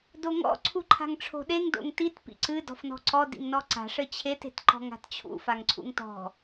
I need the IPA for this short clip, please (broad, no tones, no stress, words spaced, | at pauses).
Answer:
doŋɔ̰ ǀʰuǃʰa̤ŋʈ͡ʂʰo̤ɗeŋ do̰ŋtit pḭǀɨ dɔ̤fnɔ̤ǀɔ dḭŋnɔǀa̤ ʂɘt͡ɕʰet e̤tǃɔ̤ŋa̤tt͡ɕʰṵ faŋǀʰṵŋtɔ̤